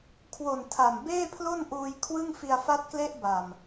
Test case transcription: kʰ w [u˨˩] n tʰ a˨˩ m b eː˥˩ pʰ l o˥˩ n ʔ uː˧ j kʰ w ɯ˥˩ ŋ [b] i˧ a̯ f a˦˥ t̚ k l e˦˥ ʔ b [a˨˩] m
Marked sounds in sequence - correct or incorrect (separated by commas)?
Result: incorrect, incorrect, correct